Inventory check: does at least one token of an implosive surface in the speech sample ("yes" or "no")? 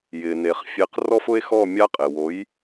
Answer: no